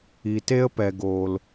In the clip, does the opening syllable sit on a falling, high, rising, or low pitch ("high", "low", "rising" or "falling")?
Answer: low